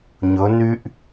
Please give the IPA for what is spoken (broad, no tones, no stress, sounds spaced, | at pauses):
ɲ ɵ n y ʔ